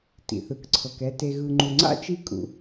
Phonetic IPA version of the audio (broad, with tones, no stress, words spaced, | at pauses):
tḭ˩θɯ˩k ǀʰɤ˩kɛ˨ te˨ɣɯ˨ŋ͡ǃu˨ŋ͡ǀa̰˥ t͡ʃi˦kʼṵ˨